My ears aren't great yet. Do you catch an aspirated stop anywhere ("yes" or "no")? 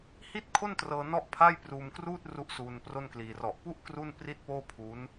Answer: yes